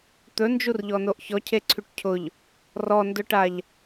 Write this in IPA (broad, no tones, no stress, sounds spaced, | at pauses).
t̪ ɵ n d͡ʒ u r ʎ ɔ n o ʔ ç ɔ cʰ e ǀʰ y ʈ cʰ ʊ ʎ | r ɔ n d ʊ ʈ a ʎ